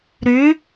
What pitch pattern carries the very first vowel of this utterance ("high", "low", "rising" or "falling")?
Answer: rising